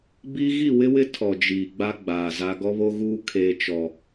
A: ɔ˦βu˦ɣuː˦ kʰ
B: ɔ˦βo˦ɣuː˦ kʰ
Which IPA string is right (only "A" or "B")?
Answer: B